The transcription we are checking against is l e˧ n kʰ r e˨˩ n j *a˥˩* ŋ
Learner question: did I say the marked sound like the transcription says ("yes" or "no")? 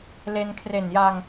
no